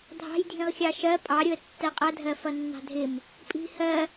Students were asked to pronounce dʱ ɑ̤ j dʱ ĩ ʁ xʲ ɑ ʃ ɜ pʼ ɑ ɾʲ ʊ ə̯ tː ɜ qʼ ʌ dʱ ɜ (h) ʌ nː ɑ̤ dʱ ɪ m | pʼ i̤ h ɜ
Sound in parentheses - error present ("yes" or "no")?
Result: yes